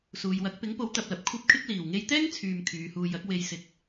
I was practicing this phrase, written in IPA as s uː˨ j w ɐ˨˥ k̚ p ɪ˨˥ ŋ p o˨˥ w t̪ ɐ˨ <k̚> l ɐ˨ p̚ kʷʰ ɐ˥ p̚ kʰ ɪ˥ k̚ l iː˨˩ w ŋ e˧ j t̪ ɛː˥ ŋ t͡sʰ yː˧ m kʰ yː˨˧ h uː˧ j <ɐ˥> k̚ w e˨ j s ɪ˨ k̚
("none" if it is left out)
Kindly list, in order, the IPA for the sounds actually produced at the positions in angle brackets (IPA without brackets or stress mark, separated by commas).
p̚, ɐ˨˥